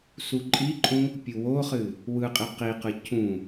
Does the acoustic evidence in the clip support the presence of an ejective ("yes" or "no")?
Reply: yes